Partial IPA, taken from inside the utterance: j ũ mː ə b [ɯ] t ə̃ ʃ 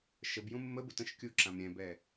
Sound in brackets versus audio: incorrect: u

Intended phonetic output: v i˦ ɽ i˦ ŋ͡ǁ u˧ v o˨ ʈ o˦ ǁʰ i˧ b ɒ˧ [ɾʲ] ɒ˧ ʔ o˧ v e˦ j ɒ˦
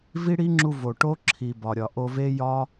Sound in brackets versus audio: correct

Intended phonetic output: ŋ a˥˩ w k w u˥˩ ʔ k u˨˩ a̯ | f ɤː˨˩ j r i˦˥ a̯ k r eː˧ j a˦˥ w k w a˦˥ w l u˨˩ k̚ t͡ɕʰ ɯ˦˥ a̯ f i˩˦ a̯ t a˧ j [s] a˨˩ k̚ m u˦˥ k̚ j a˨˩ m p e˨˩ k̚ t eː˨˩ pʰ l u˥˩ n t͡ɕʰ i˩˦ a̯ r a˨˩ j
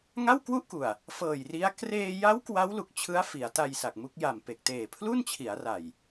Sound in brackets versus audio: correct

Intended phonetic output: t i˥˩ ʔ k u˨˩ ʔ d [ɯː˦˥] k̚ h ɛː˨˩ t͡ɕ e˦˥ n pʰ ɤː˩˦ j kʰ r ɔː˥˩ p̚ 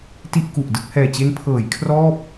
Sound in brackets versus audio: incorrect: ɯ˦˥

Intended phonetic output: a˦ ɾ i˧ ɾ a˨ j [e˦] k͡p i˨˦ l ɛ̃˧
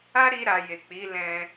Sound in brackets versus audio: incorrect: e˨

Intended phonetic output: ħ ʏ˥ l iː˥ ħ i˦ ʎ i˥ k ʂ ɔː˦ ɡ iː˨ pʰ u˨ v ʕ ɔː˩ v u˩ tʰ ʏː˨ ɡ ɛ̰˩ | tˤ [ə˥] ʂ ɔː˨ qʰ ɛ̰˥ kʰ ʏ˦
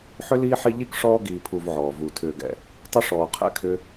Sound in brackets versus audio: correct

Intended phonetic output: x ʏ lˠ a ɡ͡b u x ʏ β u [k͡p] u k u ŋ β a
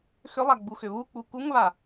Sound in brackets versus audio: correct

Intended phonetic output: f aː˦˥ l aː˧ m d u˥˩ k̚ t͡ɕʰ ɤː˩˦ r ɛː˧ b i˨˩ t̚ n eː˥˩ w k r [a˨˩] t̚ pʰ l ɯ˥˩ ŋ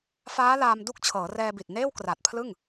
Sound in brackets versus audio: correct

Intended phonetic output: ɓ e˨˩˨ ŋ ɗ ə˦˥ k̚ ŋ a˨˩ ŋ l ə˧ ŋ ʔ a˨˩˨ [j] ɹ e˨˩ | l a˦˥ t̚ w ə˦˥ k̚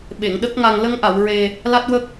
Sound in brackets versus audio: incorrect: w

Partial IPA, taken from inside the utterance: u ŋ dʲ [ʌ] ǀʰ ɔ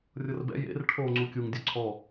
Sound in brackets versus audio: incorrect: ɔ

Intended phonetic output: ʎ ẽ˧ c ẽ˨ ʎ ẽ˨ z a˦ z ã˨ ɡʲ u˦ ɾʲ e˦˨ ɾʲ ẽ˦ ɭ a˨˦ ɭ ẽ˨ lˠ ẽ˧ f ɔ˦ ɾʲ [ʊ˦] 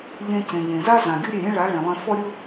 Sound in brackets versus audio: correct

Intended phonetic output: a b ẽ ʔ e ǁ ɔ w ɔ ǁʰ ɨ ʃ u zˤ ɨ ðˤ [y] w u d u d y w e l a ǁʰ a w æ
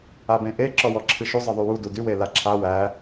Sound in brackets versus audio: correct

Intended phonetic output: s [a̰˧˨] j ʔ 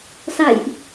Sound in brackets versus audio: correct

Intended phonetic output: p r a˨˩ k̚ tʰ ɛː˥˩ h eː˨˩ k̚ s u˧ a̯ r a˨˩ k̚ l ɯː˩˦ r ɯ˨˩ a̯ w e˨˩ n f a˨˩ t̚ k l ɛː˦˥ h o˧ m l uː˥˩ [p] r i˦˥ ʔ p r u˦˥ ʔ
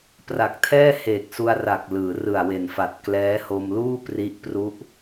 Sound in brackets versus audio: correct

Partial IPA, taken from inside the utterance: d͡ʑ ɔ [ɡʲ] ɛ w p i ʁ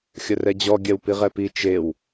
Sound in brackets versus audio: correct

